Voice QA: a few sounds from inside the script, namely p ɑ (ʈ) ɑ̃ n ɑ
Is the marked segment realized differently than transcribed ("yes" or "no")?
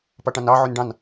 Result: no